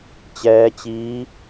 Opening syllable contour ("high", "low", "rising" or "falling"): rising